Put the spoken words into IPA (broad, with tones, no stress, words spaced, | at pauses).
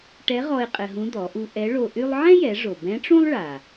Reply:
ʈɛ˧˥ʁɔ˧ɪ̯ qʼɘ˧ɦũ˧˥ d̪ɔ˩˧ʔu˧ ʔɛ˧˥ɭo˧ʔy˥lˠ ʕɛ̃˥jɛ˩˧ ʐo˩bɛ̃˧˥ʈ͡ʂũ˥lˠ ɭa˩